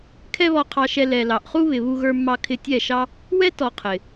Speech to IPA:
kʰ ɛ˦ β ɔ˧ qʰ ɑ˧ ʃ ɛ˧ l ɛ˨ l ɑ˨ ʔ χ u˦ β ɪ˨ β u˧ ɣ ə˞˧ mː ɑ˧ kʰ ɪ˧ tʲ ɛ˦˨ ʃ ɑ˦ | w ɛ˦ t ɔ˧ qʰ ɪ˨

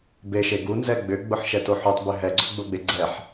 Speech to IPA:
b e ʃ e ɡ u n z ɛ ɡ͡b ʏ ɡ͡b ʊ ħ ʃ ɛ t o ħ o tˤ b ʉ ɦ ɛ ɡ͡ǀ ʊ ɡ͡b ʊ ɡ͡b e ɡ͡ǀ ɛ ħ

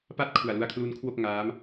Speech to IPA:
p a˥˩ t̚ kʰ u˨˩ a̯ l u˧ a̯ kʰ l u˦˥ n kʰ w o˥˩ k̚ ŋ aː˦˥ m

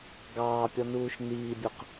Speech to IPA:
ɡ ɑː pʲ ɔ n uː ʃ n iː bʲ u q

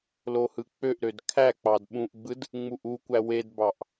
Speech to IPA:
l o h ɯ k͡p ø ʔ ɾ ø d kʰ æ k͡p ɑ d ɓ ũ ʔ ɡ͡b ɯ d | ŋ͡m u ʔ u kʷ æ w e d b ɑ ʔ

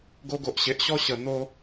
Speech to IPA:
ɡ o˧ ɡ o˨ ʔ ɕ e˨ ʔ ɕ ɔ˦ ɕ ə˨˩ n̪ o˧

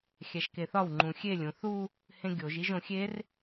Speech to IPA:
xʲ æ ʃ k e θ ɒ w ŋ͡ǃ ũ xʲ e lʲ ũ θ u | h ẽ ɡʲ o ʒ i ʒ õ xʲ e r

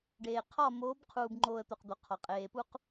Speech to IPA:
ɖ eː˨ qʰ ɒ˦˨ m oː˨˦ b qʰ uː˨ b ŋ͡ǃ oː˨ ə̯ t̪ o˨ q d̪ o˨ qʰ ɒ˨ qʼ eː˨ p u˦ q

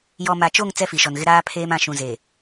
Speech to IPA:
j ɔ˨ m a˨ t͡ʃ o˦˨ ŋ t͡s ɛ˦ f i˨ ʃ ɔ˨ n ɣ ɪ˦ ɾ aː˦ pʰ eː˦ m ã˨ ʃ ũ˨ z e˨

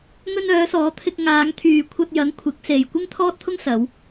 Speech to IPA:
ŋ ɵ˧ n œː˨˧ s ɔː˨˧ t̪ʰ ɪ˧ k̚ ŋ aː˨˧ ŋ t̪ʰ yː˨ kʷʰ ɐ˧ t̚ j ɐ˨˥ ŋ kʷʰ ɪ˨˥ k̚ s e˨ j kʷ ɪ˥ ŋ t̪ʰ ɔː˥ t̚ t̪ʰ ʊ˥ ŋ s ɐ˨˧ w

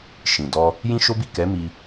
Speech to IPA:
ʃ ĩ˨ d ɔ˧ | j ĩ˦ ʃ o˦ b i˦˨ k ɛ˨˦ m i˧

